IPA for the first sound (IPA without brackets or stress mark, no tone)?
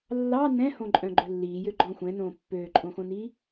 lː